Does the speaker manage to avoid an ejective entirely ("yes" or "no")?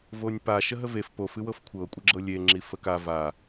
no